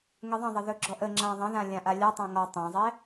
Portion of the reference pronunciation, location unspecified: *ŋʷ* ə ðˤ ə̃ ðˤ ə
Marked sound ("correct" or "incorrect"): incorrect